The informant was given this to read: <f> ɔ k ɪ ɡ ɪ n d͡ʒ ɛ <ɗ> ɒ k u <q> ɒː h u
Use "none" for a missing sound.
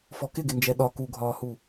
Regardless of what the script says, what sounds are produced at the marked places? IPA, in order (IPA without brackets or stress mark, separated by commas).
f, ɗ, ɡʱ